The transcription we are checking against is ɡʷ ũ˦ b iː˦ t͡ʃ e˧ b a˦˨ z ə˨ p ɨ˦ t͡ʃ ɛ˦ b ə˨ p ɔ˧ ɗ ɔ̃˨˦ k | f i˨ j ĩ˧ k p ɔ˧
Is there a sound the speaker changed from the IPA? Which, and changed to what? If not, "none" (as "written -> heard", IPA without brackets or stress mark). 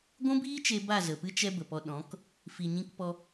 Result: j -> ɲ